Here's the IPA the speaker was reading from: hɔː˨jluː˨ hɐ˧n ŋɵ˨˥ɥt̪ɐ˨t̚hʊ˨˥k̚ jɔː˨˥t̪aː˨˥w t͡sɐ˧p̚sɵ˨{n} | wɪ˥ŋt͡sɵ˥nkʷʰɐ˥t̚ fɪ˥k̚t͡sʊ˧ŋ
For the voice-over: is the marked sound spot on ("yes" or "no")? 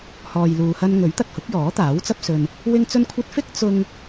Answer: yes